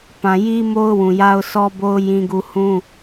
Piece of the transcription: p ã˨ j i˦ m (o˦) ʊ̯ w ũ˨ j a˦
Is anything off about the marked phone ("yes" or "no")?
no